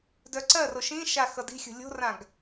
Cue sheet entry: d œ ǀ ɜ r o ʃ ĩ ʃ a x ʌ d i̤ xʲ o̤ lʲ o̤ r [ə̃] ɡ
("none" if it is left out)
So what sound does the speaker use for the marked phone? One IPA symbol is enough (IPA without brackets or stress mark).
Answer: ã